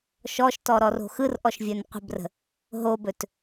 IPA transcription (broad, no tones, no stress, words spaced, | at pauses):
ʃɔʃtɔɾɔro̤ xɯrʔɔʃvʲɵn qʷə̤brə̤ | ɦobɵt